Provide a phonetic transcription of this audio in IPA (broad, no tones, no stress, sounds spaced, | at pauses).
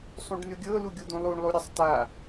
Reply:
sˤ ũ ɖ n ʉ ɡʲ ɤ l u ɡʲ u d̪ ũ lˠ u ɳ lˠ u ɾʲ a sˤ t a